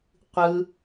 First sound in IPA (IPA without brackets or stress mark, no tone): qʷ